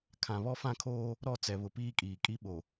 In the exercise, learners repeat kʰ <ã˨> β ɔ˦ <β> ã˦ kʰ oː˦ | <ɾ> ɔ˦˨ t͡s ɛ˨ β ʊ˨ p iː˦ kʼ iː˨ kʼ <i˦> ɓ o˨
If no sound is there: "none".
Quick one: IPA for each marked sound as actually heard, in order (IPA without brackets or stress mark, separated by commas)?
ã˨, f, ɾ, i˦